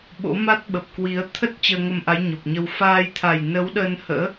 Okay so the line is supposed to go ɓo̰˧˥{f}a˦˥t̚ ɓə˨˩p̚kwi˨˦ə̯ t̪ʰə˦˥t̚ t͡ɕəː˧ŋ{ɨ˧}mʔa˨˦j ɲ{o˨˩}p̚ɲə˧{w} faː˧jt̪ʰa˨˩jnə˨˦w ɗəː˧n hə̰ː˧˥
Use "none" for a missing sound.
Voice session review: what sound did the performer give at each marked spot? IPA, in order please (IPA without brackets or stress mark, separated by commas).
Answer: m, ə˧, o˨˩, w